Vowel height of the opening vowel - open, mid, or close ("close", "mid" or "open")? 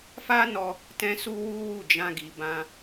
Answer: open